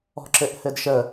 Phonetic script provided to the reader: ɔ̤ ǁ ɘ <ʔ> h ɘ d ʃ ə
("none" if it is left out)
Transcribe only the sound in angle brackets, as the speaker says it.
ʔ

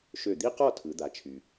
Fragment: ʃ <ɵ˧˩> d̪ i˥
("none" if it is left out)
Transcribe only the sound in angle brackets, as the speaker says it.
ø˧˩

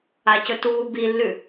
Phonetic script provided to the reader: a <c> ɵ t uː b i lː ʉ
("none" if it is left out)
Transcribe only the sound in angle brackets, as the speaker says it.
c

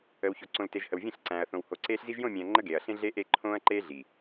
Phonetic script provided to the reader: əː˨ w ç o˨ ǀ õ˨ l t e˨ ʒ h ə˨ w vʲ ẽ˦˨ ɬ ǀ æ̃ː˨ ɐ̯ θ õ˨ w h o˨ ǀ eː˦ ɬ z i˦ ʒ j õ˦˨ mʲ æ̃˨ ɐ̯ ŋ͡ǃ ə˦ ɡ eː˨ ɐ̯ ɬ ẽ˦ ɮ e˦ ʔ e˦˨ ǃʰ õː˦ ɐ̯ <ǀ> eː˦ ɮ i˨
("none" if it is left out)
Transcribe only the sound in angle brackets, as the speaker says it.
ǃ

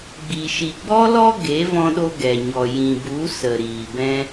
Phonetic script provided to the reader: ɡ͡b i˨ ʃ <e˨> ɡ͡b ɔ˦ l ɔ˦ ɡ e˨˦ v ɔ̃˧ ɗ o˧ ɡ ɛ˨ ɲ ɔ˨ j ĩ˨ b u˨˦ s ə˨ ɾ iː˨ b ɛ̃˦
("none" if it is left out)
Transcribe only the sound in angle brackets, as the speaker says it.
i˨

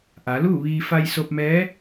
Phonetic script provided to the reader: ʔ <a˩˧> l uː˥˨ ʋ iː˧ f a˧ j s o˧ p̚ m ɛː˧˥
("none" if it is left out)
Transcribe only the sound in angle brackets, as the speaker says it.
a˩˧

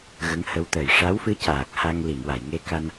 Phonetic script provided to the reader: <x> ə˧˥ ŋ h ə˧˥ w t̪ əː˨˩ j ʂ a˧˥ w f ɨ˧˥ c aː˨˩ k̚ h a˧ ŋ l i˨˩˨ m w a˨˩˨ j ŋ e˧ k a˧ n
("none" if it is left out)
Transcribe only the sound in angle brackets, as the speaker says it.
ɣ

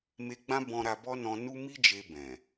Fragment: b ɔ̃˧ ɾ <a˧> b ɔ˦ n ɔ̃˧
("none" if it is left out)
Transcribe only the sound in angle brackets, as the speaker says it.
a˧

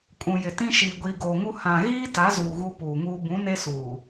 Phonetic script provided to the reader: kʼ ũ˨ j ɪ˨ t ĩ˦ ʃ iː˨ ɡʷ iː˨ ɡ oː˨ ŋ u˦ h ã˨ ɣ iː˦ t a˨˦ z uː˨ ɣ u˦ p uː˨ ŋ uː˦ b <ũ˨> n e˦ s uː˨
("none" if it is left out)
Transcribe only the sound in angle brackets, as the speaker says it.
ũ˨˦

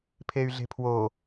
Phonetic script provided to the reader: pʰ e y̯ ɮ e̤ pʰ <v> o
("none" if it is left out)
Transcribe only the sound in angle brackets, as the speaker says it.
w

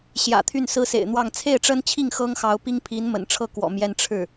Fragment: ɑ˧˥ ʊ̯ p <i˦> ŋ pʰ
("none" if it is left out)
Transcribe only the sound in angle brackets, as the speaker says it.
i˥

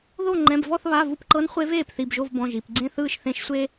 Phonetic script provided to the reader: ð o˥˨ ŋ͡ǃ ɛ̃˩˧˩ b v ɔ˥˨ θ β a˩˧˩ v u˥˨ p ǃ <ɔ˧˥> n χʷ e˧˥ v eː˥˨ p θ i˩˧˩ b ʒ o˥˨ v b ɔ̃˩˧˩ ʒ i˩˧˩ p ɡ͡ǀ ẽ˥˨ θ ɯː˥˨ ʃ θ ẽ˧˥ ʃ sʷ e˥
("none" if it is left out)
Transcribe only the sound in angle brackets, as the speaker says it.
ɤ˧˥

